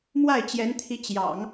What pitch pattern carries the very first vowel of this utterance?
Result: falling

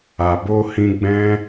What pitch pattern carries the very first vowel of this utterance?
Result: low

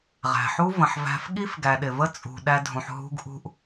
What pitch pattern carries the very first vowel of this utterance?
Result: low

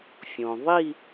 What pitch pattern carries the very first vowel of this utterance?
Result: low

